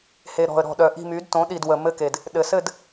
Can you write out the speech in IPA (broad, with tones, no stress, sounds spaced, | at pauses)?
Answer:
h e˨˩ ɾ ɔ̤˨˩ ə̯ ɾ ɔ̤˨˩ ɗ œ˨˩ ʔ i̤˥˨ m y˩˥ d t õ˩˥ ɗ i˨˩ d w ə˨˩ m ɘ˥˨ k e˨˩ d | ɗ ɘ˨˩ s ɘ˥˨ d